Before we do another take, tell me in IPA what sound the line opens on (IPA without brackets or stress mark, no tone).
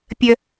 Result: pʲ